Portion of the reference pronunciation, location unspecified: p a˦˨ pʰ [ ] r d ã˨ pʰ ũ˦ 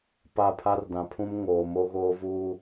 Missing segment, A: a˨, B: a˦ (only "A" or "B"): B